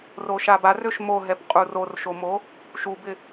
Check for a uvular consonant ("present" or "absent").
present